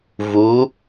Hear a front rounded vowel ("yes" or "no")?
no